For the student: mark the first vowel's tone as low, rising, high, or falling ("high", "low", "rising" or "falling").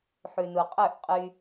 low